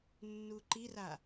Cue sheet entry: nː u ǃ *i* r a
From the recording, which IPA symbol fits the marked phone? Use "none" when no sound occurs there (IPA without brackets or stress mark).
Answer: i